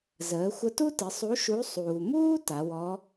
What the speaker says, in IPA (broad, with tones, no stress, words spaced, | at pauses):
zəː˩˧xʷə˧tu˥tɪ˩˧ sˤu˧˥ʃu˧˥ sˤuː˩muː˥ ta˩˧wɔ˧˥